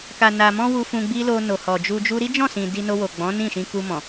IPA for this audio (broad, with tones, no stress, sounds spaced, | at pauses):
k a˨ n a˨ m ɔ̃˧ w u˦ f ũ˧ ɡ͡b i˦ l o˧ n o˨ h ɔ˨ d͡ʒ u˧ d͡ʒ u˦ ɾ i˦ d͡ʒ ɔ̃˦˨ s ĩ˨ d i˧ n o˧ w o˨ ɡ͡b ɔ̃˨˦ n ĩ˦˨ ʃ ĩ˧ k u˧ m ɔ̃˨